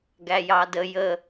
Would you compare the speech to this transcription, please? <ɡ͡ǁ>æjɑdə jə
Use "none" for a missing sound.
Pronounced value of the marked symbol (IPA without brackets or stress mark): ɡ